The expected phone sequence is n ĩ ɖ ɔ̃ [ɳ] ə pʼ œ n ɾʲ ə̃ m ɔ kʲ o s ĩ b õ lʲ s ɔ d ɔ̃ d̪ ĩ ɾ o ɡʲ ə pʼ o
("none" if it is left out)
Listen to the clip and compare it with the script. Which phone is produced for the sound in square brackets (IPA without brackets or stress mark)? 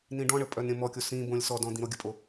ɳ